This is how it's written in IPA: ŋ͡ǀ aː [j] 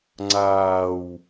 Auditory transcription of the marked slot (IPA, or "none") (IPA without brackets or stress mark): w